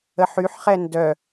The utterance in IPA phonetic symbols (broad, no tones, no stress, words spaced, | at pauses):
əħyħχɛ ndœ